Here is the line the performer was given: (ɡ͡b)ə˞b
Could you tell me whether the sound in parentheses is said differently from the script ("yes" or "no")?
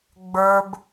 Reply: no